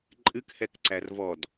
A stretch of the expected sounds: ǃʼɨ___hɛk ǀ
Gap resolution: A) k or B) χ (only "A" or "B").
A